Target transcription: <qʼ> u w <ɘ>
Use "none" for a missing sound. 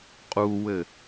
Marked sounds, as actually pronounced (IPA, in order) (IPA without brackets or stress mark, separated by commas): qʼ, ɘ